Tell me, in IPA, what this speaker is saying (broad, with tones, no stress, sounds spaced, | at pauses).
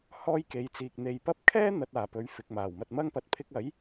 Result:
h ɔː˥ j k e˨ j t͡s iː˨ k̚ n̪ e˨ j p ɐ˥ p̚ kʰ ɛː˥ n̪ ɐ˨ t̚ aː˨˩ p ɵ˨˥ ɥ f ɪ˨ k̚ m aː˨˩ w m ɐ˧ t̚ m ɐ˥ ŋ p ɐ˨ t̚ pʰ ɪ˧ k̚ ɐ˨˥ j